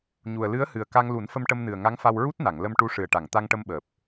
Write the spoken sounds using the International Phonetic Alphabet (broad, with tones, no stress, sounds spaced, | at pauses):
ɲ u˨˩ ə̯ l ɨ˧˥ ə̯ h ɨ˨˩ ə̯ k a˧ ŋ l u˨˩˦ n f ə˧ m ʈ ə˧ m n ɨ˨˩ ə̯ ŋ a˧˥ ŋ f a˧ w ɹ u˦˥ t̚ n a˨˩˨ ŋ l ə˧ m ʈ u˧˥ ʂ ɨ˨˩ ə̯ ʈ a˨˩˨ ŋ t̪ a˧ ŋ ʈ ə˧ m ɓ əː˨˩ p̚